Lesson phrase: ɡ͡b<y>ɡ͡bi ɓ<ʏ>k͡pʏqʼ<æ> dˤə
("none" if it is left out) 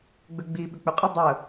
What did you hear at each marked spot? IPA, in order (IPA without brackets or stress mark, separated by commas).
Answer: ʏ, ʏ, ə